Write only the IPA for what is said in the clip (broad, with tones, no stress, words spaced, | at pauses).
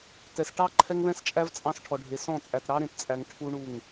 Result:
tɛ˨s ʈɑ˦ ǃʰɛ˦ŋβɛ̃˦st͡ʃʼæ˦v t͡sʼɑ̃˦sʈʰɔ˨ɖʱe˨ sɔ̃˦˨t͡sʼæ˨t ɾɑ˦ɾẽ˨tt͡sʼæ˨ŋ ʈʰu˦ɳu˦˨ŋ